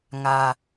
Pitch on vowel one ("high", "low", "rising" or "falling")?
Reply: low